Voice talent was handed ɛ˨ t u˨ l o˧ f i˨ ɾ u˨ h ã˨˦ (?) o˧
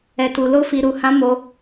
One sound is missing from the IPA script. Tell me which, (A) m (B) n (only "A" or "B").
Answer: A